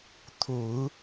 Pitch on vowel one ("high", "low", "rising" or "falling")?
low